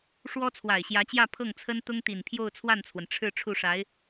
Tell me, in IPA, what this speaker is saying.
ʂ w ɔ˥ t͡sʰ w a˨˩ ɪ̯ ɕ j ä˧˥ t͡ɕ j ä˥˧ pʰ ɤ˥˩ ŋ t͡sʰ ə˥ n t̪ ʊ˥ ŋ t̪ i˨˩ n pʰ j o˥˧ ʊ̯ t͡sʰ w a˥˩ n t͡sʰ w ə˩ n ʈ͡ʂʰ ɻ̩˥˧ ʈ͡ʂʰ u˥˩ ʂ a˧˥ ɪ̯

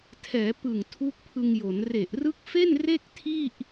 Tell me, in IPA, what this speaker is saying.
tʰ ɛː˩˦ p ɯ˨˩ ŋ tʰ u˦˥ k̚ pʰ ɯ˧ ŋ j o˩˦ n r e˨˩ ʔ r ɯ˦˥ k̚ f e˥˩ n r e˥˩ k̚ tʰ i˥˩ ʔ

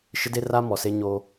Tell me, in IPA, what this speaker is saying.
ʃ ɪ˦ d e˦ r a˦ m ɔ˨ s e˦ ɲ oː˦

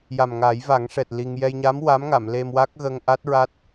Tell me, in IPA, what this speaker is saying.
j a˨˩ m ŋ aː˨˩˦ j v a˨˩˦ ŋ ʂ ɛ˨˩ t̚ l i˧ ŋ j ɛ˧ j ɲ a˧˥ m w a˧˥ m ŋ a˨˩˨ m l e˧ m w a˦˥ k̚ ɣ ə˧ ŋ ʔ a˦˥ t̚ ɹ a˦˥ t̚

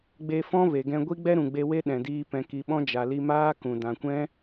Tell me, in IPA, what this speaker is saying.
ɡ͡b e˧ f ɔ̃˦ v e˨ ɡ ɛ̃˧ ɡʷ i˦ ɡ͡b ɛ˦ ɾ ũ˨ ɡ͡b e˧ w e˦ ɗ ɛ̃˨ d iː˧ p ɛ̃˨ k i˨ ɓ ɔ̃˦ d͡ʒ a˨ l i˧ m aː˦ k ũ˨ d ã˨ kʷ ɛ̃˦

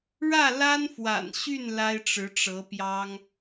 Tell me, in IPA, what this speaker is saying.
ɻ ä˥˩ l a˥ n f w a̰˨˩ n ɕ y˥˩ n l a˥ ɪ̯ ʈ͡ʂ ɻ̩˧˥ ʈ͡ʂ ɤ˧˥ p j ɑ˥ ŋ

